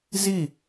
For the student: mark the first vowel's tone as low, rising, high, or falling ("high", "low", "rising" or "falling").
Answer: falling